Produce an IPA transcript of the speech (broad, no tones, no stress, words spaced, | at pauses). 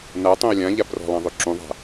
na tˤũə̯lʲã ʎabrɔ̤lˠãðˤø ǁũðˤa̤